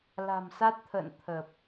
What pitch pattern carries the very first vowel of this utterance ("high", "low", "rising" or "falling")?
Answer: low